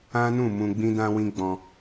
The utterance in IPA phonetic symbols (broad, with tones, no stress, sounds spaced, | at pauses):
ã˦ n ũ˦˨ m ũ˧ ɡ͡b ĩ˦ d ã˦ w ĩ˦ ɡ͡b ɔ̃˧